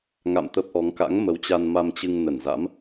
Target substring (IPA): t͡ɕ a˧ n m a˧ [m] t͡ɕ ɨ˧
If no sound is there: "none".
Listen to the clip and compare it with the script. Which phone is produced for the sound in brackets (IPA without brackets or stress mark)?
m